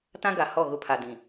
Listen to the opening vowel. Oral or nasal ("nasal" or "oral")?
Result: nasal